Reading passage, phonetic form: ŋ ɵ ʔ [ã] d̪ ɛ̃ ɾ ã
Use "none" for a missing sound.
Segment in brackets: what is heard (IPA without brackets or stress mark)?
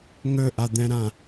a